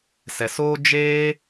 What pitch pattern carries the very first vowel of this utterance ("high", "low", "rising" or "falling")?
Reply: low